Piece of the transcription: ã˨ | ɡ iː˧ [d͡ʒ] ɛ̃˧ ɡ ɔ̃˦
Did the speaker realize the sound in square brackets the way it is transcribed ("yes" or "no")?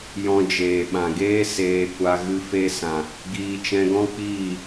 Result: no